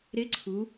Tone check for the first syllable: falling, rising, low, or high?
rising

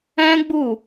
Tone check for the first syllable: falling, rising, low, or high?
high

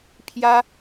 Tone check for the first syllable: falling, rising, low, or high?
high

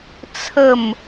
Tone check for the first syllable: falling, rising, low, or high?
falling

